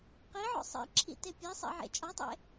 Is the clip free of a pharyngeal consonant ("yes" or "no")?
no